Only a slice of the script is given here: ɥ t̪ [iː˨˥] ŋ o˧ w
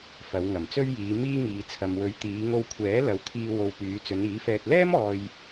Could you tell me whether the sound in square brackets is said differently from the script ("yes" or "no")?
yes